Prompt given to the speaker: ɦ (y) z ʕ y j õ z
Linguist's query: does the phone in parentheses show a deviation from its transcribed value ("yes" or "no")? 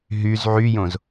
no